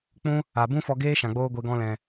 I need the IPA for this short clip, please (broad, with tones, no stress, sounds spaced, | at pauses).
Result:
k͡p ũ˦ | a˨ b ũ˦ f ɔ˧ ɡ eː˦ ʃ ã˨ ɡ͡b oː˧ ɡʷ e˧ ɡ ɔ̃˧ l ɛ̃˨